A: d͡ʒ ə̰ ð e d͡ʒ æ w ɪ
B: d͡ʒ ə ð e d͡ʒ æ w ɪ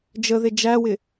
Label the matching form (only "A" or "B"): B